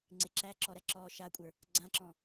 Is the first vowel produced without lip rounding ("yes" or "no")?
yes